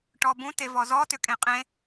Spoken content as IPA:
ʈ ɔ b ũ t e v ɔ z ɔ t ʏ kʼ ẽ qʼ ẽ

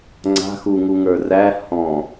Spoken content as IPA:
ŋ͡ǀ a̤ x u ŋ u ŋ ə˞ r æ h ɔ̃

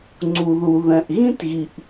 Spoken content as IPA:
ŋ͡ǀ u˩ ð u˩ ð ɛ̃˩ ʔ ɣ ĩ˥ t ɣ i˩ ʔ

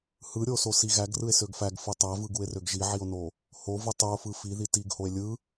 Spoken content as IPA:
h ɯ ɾʲ o s o s i ɣ æ ɡ r ɯ e̯ s ø ɡ f æ ɡ f ɯ tˤ æ v ɯ ɡ u e̯ r ø ɡ ʒ i ʕ i o̯ n o | h o v ɯ tˤ u o̯ f ɯ f i ð i t i ɡ h o e̯ lʲ ɯ

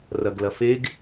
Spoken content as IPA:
r ɐ ɡ l ɐ f e ɡ

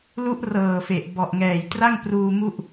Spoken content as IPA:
l u˦˥ ʔ r ɤː˨˩ f e˨˩ ʔ b ɔ˨˩ ʔ ŋ ɛː˨˩ j t r a˥˩ ŋ p r uː˧ m u˥˩ ʔ

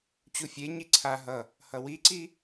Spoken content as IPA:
t͡ɕ u fʲ e ɲ i ǀʰ a ɦ ʌ | h ʌ w i ǀ i

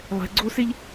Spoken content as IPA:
lˠ ɛ̤ ɡ͡ǀ oː s e ʎ

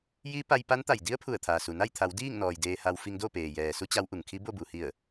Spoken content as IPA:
j i˧˥ p a˧ j p a˧˥ n t̪ a˧˩ j d i˧˥ ə̯ pʰ u˧˩ ə̯ t̪ʰ aː˩ s u˩ n a˥˨ j t̪ʰ a˩˧ w d iː˥˨ ŋ n ɔː˩ j d eː˧ h a˧ w f i˧ ŋ d o˥˨ p eː˩ j ɛː˩ s u˧˥ t͡ɕ a˧˥ w ʔ u˩ ŋ kʰ i˧˥ b o˥˨ b u˩ h i˧˩ ə̯

